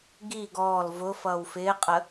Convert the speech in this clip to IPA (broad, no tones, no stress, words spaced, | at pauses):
ɡi ɡɔːl vʊ fʌːwfɪːqʼə